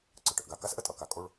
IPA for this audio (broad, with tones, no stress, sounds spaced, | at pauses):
ǀ ɯ˨˩ ʈ ə˥˧ ʔ ɡ a˩˧ k a˦˥ s ʔ ə˨˥ tʼ ʌ˩˧ k a˨˩ kʼ o˥˧ ɭ